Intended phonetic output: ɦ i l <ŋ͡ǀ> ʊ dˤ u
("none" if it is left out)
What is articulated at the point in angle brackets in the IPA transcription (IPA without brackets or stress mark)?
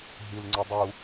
ŋ͡ǀ